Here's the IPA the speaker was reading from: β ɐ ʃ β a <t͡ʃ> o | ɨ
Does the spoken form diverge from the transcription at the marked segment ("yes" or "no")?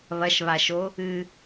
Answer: yes